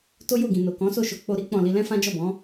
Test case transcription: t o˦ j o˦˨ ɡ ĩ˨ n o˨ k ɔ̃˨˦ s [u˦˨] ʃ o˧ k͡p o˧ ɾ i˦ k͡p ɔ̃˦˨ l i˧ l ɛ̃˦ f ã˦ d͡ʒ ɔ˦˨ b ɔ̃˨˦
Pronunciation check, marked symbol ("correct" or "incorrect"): incorrect